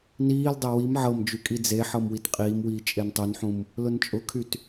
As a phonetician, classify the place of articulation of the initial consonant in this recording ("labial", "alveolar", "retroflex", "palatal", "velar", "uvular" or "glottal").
alveolar